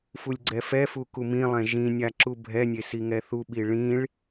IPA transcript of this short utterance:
f u lʲ ɡ͡ǀ ɛ f ɛ f u k u m ĩ lˠ ɛ̃ ʒ ĩ nʲ a ǁ u bʱ ɛ nʲ e s i ŋ ɛ θ u ɓ i ɭ ĩ ɭ

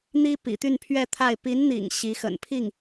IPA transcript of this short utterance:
n̪ i˥ p ḭ˨˩ t̪ y˥˧ n pʰ ɥ ɛ˥˧ t̪ʰ a˥˩ ɪ̯ p i˧˥ n n̪ ḭ˨˩ ŋ ɕ i˧˥ x ə̰˨˩ n pʰ i˥˩ ŋ

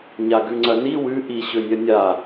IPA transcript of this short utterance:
ɲ a ɡ ʉ ŋ͡ǀ ɐ n i w ʉ ʔ i ɕ ɵ nʲ ɐ nʲ a

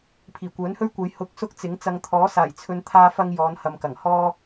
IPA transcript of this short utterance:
pʰ iː˨˩ kʷ œː˨˥ n h ɵ˥ ɥ kʷ ɐ˨˧ j h ʊ˧ k̚ s ʊ˥ k̚ t͡s ɪ˨˥ ŋ t͡s ɐ˧ ŋ t̪ʰ ɔː˨˥ s aː˨˩ j t͡sʰ ɵ˧ n t̪ʰ aː˥ f ɐ˥ ŋ j ɔː˨˧ n h ɐ˨ m k ɐ˨˩ ŋ h ɔː˥

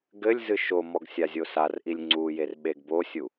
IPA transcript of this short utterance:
ɡ ɘ lʲ z ɨ ʃ o m ɔ ɡ sʲ a zʲ o s a r ʔ i lʲ ŋ͡ǀ u j e r ɓ e ɡ b o sʲ u

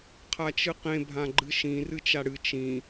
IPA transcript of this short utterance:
qʰ a t͡ʃ ɨ q ẽ bʱ ã ɡ͡ǃ ɨ ʃ ĩ r ɨ t͡ʃ a ɽ ɨ t͡ʃ ĩ

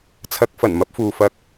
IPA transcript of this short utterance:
t͡sʰ ɐ˨ k̚ f ɐ˨˩ n m ɐ˧ p̚ f uː˨ f ɐ˧ k̚

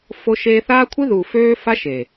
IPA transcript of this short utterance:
f o˦ ʃ eː˦ θ aː˦ kʷʰ ɨ˦ ð uː˨ f øː˦ f a˦ ʃ e˨

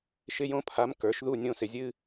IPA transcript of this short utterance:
ʃ ɪ˥ j õ˥ pʰ a˧˥ m k ə˞˩˥ ʃ ð u˦˨ nʲ õ˦˨ s ɪ˨ zʲ ɨ˥

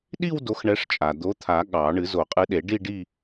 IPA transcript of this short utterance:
ɗ i˥˧ w d o˨˥ x ɳ ɛ˨˥ ʂ t͡ʃʼ a˩ d̪ o˨˥ t̪ʰ a˨˩˦ ɠ ɑ˨˩˦ ɳ ɨ˨˩˦ z o˨˩˦ qʼ ɨ˨˥ ɗ e˨˩˦ ɖ i˥˧ ɖ i˥˧

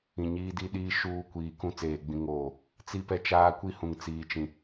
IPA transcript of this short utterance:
ĩ˨ ɲ iː˦ d i˦ ɗ iː˦ ʃ uː˦ kʷ iː˨ k ũ˦ t͡s eː˨ ɡ͡b ĩ˨˦ ŋ oː˦˨ | t͡s i˦ p ɛ˦ t͡ʃ aː˦ kʷ i˦ h ũ˨ ŋ t͡s iː˨ t͡ʃ ĩ˨

